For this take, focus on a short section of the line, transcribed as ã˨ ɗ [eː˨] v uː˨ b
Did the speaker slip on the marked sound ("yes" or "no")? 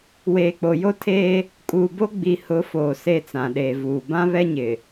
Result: no